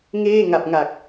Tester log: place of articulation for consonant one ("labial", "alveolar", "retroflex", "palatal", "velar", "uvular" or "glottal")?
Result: velar